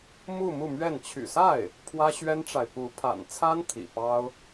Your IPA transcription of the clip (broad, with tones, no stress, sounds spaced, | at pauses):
m u˥˧ m u˥˧ m ɥ ɛ˥˩ n t͡ɕʰ y̰˨˩ s a˥˩ ɪ̯ | pʰ w ä˥ ɕ ɥ ɛ˥ n ʈ͡ʂ a˨ ɪ̯ p u˧˥ pʰ a̰˨˩ n t͡sʰ a˥ n t̪ʰ ḭ˨˩ p ɑ˥ ʊ̯